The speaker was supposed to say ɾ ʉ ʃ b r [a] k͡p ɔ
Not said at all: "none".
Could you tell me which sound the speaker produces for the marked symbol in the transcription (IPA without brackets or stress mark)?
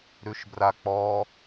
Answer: a